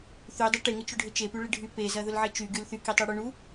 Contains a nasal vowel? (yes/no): no